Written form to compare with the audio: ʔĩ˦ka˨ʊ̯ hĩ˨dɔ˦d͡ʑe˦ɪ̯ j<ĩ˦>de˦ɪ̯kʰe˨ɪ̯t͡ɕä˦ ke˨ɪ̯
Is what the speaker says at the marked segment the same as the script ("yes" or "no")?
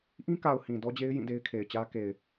no